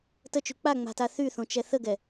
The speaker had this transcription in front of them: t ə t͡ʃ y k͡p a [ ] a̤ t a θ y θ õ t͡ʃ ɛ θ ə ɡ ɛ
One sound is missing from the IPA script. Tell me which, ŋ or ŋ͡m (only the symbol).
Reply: ŋ͡m